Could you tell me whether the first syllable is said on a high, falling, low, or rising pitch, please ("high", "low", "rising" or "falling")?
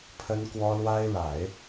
high